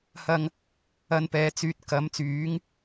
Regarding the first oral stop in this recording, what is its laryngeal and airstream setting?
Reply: plain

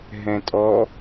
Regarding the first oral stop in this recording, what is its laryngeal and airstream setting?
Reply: ejective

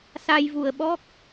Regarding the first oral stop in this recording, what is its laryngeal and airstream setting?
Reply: implosive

